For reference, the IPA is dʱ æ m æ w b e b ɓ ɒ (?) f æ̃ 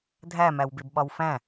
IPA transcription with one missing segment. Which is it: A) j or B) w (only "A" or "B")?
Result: B